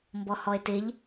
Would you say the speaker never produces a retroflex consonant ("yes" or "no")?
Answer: yes